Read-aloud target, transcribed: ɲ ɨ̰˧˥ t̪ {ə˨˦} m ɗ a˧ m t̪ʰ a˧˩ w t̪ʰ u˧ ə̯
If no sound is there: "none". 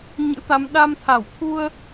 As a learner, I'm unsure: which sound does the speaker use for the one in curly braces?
a˨˦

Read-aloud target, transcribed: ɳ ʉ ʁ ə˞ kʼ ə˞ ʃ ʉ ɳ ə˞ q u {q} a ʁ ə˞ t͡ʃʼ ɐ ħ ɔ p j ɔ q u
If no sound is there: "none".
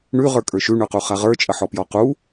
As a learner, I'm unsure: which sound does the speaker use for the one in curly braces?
χ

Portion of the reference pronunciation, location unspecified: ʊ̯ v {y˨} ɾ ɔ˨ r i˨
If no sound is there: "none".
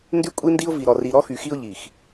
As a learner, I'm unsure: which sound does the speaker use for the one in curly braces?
i˨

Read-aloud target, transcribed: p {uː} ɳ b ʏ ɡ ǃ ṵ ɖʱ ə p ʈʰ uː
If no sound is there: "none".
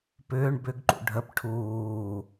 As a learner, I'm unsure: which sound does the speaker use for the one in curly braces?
ʏː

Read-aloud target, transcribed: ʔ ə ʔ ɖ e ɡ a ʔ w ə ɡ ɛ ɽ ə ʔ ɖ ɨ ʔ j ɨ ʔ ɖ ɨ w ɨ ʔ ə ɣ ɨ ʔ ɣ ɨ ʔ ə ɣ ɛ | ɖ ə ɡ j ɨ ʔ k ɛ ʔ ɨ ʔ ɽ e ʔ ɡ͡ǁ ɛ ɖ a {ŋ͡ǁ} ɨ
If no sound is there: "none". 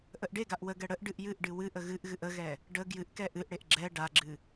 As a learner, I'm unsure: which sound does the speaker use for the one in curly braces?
ɡ͡ǁ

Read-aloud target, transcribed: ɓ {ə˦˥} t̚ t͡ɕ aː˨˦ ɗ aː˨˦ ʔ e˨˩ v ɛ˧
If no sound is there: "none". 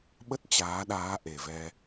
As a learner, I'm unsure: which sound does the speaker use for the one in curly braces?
ə˦˥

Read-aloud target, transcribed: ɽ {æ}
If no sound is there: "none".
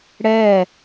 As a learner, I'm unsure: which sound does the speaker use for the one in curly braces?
ɛ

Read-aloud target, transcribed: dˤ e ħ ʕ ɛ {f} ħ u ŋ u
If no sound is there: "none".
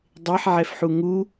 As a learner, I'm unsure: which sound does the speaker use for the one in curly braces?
f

